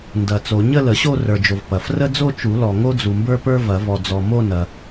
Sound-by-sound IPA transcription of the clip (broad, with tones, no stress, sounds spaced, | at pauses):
n d ɐ˨˩˦ t͡s o˨˩˦ ɲ ə˥˧ l ə˨˩˦ ɕ o˥˧ r ə˞˨ d͡ʒ o˨ v p ɐ˨ f r ə˥ d͡z o˥˧ t͡ʃ u˨˩˦ l ɔ˨ ŋ o˥ d͡z u˨ m b ə˞˥ p ə˞˥ v ɐ˨˩˦ v ɔ˨ d͡z ɔ˨ m o˥˧ n ɐ˨